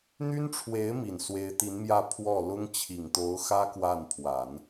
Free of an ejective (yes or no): yes